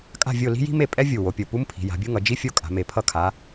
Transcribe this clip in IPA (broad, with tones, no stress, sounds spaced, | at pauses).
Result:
kʼ a̤˥˨ vʲ o˥˨ l i̤˥ j i̤˥ m e˥˨ pʼ ɛ˥ vʲ u˧˩ w o˨˦ pʲ o˧˩ p u˥ m pʰ i̤˨˦ j a̤˨˦ bʲ u˥ ŋ ʌ˨˦ d͡ʒ i˥ fʲ o˥˨ kʼ a̤˨˦ m e˨˦ pʰ ʌ˥˨ kʰ a˨˦